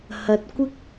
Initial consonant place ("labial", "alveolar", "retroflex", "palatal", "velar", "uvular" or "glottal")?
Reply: glottal